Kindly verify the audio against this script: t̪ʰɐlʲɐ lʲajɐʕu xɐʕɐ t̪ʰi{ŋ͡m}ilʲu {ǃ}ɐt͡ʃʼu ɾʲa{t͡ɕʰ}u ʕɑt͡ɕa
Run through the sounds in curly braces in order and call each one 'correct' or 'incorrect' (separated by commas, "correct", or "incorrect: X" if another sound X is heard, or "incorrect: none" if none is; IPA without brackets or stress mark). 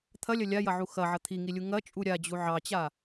incorrect: ŋ, incorrect: ŋ, incorrect: d͡ʑ